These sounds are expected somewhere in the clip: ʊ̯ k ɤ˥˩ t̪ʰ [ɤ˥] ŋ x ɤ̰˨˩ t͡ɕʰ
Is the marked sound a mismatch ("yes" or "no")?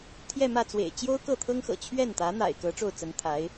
no